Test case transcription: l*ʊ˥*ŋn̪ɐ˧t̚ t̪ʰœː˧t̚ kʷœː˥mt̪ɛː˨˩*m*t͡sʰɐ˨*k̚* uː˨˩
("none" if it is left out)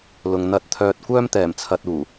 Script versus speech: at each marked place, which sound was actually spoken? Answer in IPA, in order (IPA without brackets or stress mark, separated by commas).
ʊ˨, m, t̚